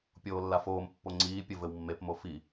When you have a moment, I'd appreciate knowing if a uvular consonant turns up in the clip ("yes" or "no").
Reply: no